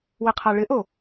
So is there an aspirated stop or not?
yes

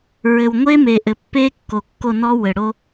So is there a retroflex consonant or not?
yes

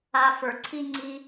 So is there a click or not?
yes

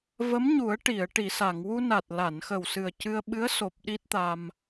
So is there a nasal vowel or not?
no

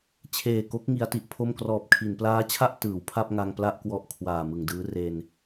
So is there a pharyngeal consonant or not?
no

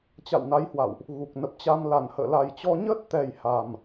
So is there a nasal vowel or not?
no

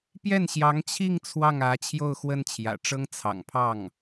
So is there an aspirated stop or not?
yes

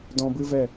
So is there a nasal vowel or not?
yes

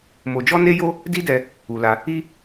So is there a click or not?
no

